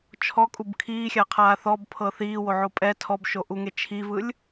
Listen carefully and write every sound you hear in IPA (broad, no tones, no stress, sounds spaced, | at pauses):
t͡ʃʰ ɔ kʼ u b kʰ iː xʲ a qʰ aː θ ɔ b pʰ ɤ θ iː w o ʕ o pʼ ɛ tʰ ɔ b ʃ o ʔ u ŋ e t͡ʃʰ i v ɯ lʲ